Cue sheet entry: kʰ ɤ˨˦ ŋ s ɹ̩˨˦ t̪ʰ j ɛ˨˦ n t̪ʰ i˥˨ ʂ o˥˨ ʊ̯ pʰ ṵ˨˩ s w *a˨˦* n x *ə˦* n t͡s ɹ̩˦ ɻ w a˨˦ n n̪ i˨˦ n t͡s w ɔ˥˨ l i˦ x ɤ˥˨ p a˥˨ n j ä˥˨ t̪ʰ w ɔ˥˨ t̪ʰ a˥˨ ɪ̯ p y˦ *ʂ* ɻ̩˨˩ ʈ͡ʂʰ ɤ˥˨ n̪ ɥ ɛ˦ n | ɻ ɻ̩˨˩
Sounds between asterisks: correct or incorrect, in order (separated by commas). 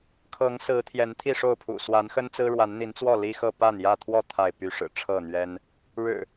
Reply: correct, correct, correct